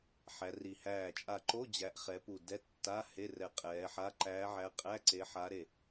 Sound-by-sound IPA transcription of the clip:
ħæ˨˦ri˧˩ hæː˧˩t͡ʃʼa˧˩ǃo˧˥˧ d͡ʑæ˨˦ʔ χɛ˨˦ pu˧˩dɛ˧˥˧ tːa˧˥˧ he˧˥˧rɛ˧˩ qʼɛː˨˦ħa˧˥˧ ǃæː˨˦ʕæ˨˦ qʼæ˧˥˧ǀe˨˦ ħaː˨˦ɾe˧˩

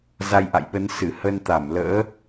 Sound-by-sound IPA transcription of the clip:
za˧jʔa̰˧˨jɓə˨˦n sɨ˧˩hə˧nt̪a˧˩mlə̰ː˧˥

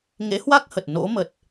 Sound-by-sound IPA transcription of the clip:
ŋḛ˧˥hwa˦˥k̚hə˨˩t̚ no̰˧˥ mə˨˩t̚

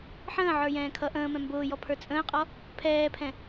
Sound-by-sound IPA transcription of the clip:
ħə̃ːʕə˞ jɛ̃ːkʰʌ ʔə̃ːmɛ̃ mbʊːjɔpʰə˞ t͡sʼə̃ːqʼɔ | pʰɛːpʰɛ̃

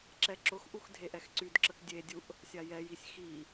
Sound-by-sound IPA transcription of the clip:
ǁɛǁʊxʔux dʱeʔɛxǀydǁək dʲedʲuʔ | sʲajɛjisʲ xi

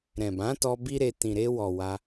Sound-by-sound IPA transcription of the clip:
ɾɛ̃˨bã˨˦tɔ˧ bi˦ɾe˧ tĩ˨ɾe˧wɔ˨ wa˧

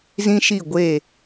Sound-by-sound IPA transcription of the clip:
zĩ˦ʃi˦˨ɡʷe˦˨

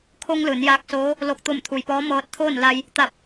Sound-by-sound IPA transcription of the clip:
kʰo˧ŋ lɯː˩˧njaː˧k̚soː˧˥ | lo˧˩k̚t̪o˧˩mt̪ʰu˩j pɔː˧˥mɤː˧t̚t̪ʰoː˥˨nla˧j | t̪a˧˩p̚

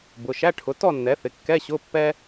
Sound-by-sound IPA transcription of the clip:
bʊ˩˧˩ ʃæ˧˥˧ʈʰʊ˩˥ tɔ˥˨nːɛ˩˥θɪ˩˧˩ kːɛ˧˥˧ɕʊ˧˥˧ pːɛ˥

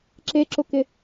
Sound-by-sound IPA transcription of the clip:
ǁeǁʊkɪ

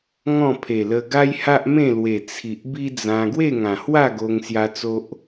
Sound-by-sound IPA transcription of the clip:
ŋɔ̃˥˧pʰe˨˩lə˧ ɡa˦jha˦ʔmẽ˥˧lwe˨˩ t͡sʰi˨ʔbi˦d͡zã˧ ɡwe˥˧ŋã˨˩hwa˥˧ ɡo˧ŋsja˧ t͡so˦ʔ

